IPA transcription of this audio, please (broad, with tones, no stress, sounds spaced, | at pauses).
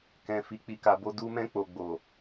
k ɛ̃˨ f i˨ k͡p i˨ k a˨ b o˧ d u˧ m ɛ̃˧ k͡p o˨ ɡ͡b o˨